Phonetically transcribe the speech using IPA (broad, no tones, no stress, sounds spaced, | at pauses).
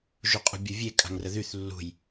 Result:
ʒ u qʼ ṳ bʲ u vʲ e kʼ a̤ ŋ r ə ð y θ lː ṳ j